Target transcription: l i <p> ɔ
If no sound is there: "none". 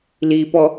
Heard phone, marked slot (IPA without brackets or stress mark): p